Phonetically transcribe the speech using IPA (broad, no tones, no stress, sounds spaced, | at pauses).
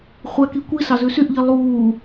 χʷ ɛ k i kʷ i s ɑ z ʉ s y ʔ ʎ i lˠ uː